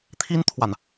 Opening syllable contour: high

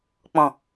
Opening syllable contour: low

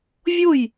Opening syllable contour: falling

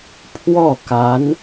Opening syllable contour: falling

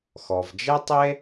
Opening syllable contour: low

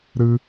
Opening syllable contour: high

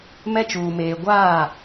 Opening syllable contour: high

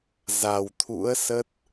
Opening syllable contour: low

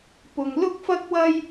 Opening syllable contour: low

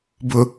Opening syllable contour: low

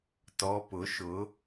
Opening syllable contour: rising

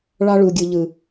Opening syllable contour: high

